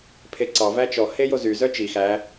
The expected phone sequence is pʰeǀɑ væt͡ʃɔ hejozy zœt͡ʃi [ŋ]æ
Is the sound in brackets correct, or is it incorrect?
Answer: incorrect